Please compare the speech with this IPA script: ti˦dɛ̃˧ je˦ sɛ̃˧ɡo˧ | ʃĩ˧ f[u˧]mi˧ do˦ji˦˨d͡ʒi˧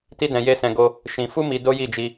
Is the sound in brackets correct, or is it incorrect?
incorrect